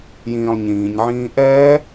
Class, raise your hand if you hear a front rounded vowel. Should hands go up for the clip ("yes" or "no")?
no